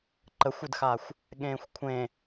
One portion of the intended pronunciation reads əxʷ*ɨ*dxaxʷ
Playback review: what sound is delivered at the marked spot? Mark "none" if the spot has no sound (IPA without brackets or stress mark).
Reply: ɨ